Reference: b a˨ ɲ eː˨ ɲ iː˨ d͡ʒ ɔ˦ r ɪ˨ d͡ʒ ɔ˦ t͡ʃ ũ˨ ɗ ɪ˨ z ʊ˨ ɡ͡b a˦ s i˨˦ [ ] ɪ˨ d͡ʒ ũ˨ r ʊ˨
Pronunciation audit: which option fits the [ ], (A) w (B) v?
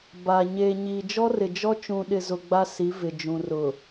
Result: B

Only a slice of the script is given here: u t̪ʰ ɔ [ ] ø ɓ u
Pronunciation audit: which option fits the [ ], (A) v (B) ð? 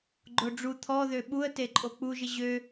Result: B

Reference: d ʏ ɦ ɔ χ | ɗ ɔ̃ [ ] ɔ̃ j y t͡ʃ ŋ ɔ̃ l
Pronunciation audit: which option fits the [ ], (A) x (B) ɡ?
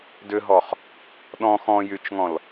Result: A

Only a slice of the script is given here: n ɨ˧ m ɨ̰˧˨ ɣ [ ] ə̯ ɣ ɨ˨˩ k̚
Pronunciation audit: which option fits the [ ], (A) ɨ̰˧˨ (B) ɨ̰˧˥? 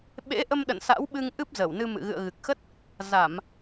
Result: A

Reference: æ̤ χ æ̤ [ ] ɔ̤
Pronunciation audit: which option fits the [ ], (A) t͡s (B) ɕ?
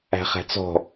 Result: A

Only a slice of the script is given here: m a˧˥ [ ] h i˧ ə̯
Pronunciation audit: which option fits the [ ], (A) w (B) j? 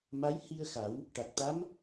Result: B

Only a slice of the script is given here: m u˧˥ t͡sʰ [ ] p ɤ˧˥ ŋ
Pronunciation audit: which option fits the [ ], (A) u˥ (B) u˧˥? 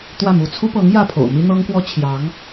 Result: A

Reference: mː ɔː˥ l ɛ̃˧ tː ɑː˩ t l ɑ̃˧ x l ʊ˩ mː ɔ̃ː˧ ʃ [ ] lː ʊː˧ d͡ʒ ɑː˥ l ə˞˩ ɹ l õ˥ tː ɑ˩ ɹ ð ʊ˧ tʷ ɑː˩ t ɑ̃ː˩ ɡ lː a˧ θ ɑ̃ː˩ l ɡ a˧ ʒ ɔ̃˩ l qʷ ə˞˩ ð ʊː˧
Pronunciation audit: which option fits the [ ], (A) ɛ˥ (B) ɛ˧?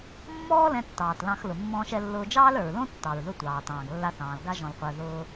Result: B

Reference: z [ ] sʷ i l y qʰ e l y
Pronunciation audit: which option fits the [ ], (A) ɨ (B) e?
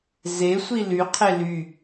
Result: B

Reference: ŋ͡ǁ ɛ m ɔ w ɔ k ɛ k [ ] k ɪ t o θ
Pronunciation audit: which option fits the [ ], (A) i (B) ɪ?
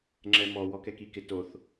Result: A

